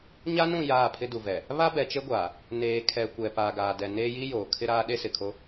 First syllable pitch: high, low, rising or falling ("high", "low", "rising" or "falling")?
high